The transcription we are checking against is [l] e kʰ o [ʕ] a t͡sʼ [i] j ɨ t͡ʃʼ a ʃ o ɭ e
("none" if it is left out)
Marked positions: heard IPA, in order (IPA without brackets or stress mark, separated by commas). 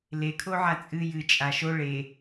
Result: l, ʕ, ɨ